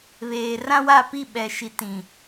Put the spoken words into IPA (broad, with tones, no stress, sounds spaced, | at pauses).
β eː˨ r ã˦ w a˦˨ p i˦˨ ɓ ɛ˨ ʃ i˨ t ĩ˨